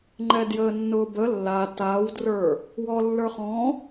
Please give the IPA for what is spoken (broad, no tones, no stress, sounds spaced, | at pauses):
ŋ͡ǃ ɛ d j əː nː ʊː b ə lː a t a w d r ə˞ | w ɔ lː ə˞ χ ɔ̃